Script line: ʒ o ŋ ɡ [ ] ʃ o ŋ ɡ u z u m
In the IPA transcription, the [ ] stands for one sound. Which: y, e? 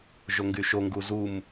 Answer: y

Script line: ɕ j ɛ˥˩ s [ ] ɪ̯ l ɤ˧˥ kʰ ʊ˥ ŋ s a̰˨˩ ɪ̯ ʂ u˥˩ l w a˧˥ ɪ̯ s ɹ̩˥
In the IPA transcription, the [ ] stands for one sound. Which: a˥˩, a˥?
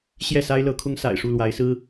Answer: a˥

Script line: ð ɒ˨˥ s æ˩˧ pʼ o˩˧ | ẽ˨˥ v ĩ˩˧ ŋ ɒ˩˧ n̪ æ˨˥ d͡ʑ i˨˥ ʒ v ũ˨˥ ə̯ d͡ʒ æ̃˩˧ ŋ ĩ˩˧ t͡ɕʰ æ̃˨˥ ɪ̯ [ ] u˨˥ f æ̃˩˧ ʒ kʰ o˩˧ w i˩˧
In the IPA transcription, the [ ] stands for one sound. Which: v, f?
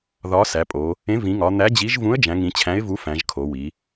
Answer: v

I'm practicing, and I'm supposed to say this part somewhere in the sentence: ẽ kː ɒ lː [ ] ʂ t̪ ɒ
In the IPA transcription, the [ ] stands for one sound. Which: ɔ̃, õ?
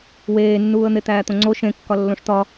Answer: õ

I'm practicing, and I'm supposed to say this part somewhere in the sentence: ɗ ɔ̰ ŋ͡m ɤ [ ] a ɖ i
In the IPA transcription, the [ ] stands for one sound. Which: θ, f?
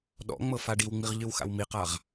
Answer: f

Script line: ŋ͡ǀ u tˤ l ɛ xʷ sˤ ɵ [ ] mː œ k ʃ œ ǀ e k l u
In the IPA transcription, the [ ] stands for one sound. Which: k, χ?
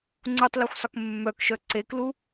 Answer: k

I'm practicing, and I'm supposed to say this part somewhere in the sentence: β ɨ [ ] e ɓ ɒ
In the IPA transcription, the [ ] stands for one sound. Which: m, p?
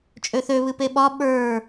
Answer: p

